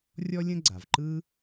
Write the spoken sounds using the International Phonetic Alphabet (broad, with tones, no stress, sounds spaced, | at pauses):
rʲ ɔ˥ lʲ ə̃˥ ɡ͡ǀ a˩ v ǃ ɯ˥